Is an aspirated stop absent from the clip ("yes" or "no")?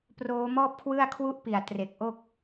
no